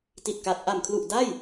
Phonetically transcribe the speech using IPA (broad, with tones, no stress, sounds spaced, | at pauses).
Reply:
t i˨˩ t̚ k a˨˩ t̚ ʔ a˨˩ m kʰ l u˨˩ ʔ d a˥˩ j